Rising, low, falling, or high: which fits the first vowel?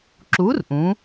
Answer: rising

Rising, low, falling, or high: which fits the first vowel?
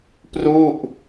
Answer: falling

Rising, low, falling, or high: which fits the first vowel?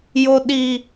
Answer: low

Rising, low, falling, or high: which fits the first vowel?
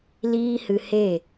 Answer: high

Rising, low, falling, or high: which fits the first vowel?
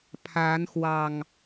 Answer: rising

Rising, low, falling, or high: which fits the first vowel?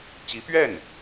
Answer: rising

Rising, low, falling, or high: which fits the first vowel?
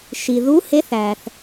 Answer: low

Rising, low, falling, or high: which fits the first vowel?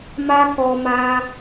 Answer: high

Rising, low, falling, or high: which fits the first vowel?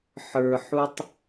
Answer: low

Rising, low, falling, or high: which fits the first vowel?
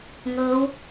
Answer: rising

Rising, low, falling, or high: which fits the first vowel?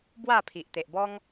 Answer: falling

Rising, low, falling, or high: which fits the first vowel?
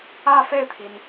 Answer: falling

